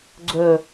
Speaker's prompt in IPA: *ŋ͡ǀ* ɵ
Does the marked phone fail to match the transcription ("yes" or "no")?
yes